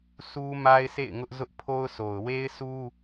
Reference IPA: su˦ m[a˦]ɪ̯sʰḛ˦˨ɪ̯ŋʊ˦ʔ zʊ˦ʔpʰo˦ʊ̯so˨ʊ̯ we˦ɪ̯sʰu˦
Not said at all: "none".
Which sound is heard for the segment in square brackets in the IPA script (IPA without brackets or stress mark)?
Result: a˦